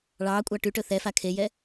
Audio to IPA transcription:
ɭ ɑː kʷʼ ɑ ʈ y ʈ ɵ θ ɛ f a kʰ e j ɛ

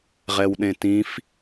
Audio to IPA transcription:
ʁ ɛ w ɗ ẽ t ĩ f

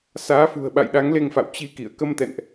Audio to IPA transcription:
s aː˨˦ f ṳ˨˩ ə̯ ɓ a̰˧˨ j ɗ a˨˦ ŋ l e˧ ŋ f a̰˧˨ w t͡ɕ i˧ k ḭ˧˨ ə̯ k ə˧ m t̪ ɛ̰˧˨ n ʔ

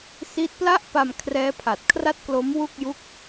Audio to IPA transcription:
s i˦˥ t̚ p l a˥˩ ʔ p a˧ m kʰ r ɛː˦˥ pʰ a˨˩ t̚ kʰ r a˥˩ t̚ k l o˦˥ m w u˥˩ k̚ j u˥˩ k̚

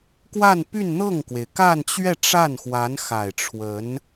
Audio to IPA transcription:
k w a˥˧ n p y˥˧ n n̪ ɤ˥˩ ŋ k w e˩ ɪ̯ k a˥˧ n t͡ɕ ɥ ɛ˥˧ ʈ͡ʂ a˥˩ n x w a˧˥ n x a˨˩ ɪ̯ ʈ͡ʂʰ w ə˧˥ n

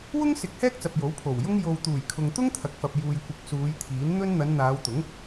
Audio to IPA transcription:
w ʊ˥ ŋ s ɪ˨˥ k̚ h ɛː˥ k̚ t͡s ɐ˨ p̚ j o˨˥ w pʰ o˨˩ w j ʊ˥ ŋ j o˨ w t̪ uː˨˩ j kʰ ʊ˨ ŋ t̪ ʊ˥ ŋ t̪ʰ ɐ˨ k̚ f ɐ˨ p̚ j uː˨ j kʷ ɪ˨˥ k̚ s uː˨˧ j t̪ʰ iː˨˥ n n̪ ɵ˥ n n̪ ɐ˨˧ n n̪ aː˨˧ w t̪ ʊ˨˥ ŋ

